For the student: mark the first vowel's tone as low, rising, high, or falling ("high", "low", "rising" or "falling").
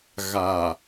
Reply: low